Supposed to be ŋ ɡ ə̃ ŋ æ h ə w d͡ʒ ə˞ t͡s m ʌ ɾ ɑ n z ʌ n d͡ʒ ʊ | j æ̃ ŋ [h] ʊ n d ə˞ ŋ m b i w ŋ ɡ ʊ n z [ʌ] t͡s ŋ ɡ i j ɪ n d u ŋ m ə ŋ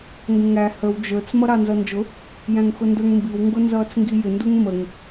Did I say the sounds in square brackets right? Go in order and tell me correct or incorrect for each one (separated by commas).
incorrect, incorrect